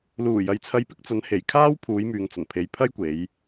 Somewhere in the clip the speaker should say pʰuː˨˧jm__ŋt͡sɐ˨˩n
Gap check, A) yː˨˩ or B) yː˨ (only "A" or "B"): B